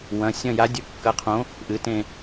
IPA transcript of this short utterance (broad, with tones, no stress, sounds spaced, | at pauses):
w ɐ̃˩˧˩ sʲ ɐ̃˦˨ j a˨˥ dʲ ɵ˨˥ kː ɐ˨˥ qʰ õ˨˥ | ʔ ɨ˩˧˩ t ẽ˦˨